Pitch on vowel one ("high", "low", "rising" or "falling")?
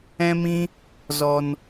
high